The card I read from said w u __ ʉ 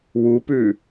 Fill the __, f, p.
p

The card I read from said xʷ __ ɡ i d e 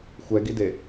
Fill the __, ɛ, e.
ɛ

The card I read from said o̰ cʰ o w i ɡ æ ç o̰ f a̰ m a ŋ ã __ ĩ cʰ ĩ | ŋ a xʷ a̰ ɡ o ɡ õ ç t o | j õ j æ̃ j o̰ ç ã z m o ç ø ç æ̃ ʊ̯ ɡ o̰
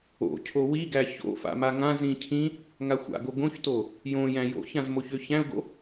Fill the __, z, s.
z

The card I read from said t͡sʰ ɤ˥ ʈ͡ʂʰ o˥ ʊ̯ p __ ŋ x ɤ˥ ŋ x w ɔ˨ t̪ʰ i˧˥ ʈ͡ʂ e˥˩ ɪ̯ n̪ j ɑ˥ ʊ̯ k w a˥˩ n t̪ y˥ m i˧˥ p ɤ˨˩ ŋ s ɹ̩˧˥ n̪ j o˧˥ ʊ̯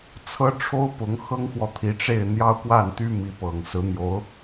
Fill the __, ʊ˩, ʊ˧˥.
ʊ˧˥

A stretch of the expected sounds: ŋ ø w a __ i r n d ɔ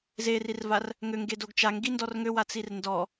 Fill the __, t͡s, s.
t͡s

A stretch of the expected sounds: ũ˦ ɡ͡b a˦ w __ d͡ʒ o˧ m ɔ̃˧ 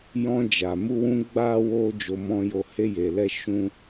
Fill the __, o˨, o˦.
o˦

